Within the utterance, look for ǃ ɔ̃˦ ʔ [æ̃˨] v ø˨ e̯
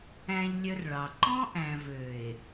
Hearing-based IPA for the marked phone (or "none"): æ̃˨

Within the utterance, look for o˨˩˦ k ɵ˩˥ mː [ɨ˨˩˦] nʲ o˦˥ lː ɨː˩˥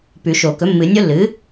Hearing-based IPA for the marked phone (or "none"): ɨ˨˩˦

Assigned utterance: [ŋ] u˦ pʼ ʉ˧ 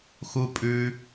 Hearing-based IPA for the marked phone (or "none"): x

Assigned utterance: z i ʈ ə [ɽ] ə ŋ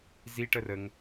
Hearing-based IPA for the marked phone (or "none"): r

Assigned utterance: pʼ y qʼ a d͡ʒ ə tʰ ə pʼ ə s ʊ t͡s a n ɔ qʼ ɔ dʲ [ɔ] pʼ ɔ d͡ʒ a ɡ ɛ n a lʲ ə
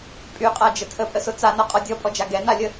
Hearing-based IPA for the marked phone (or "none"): ɔ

